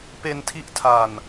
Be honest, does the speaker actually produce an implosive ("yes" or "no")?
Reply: no